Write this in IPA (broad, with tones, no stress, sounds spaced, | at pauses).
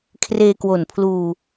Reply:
kʰ r eː˧ k w o˨˩ n pʰ l uː˧